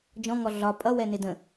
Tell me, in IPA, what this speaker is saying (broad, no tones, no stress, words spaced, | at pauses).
d͡ʒɔ̃ŋɔ ɮɒ pʼʌwɛnɪ də̃